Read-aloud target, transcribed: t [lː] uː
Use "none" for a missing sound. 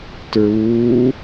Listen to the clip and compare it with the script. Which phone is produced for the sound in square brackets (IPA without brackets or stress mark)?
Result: ɹ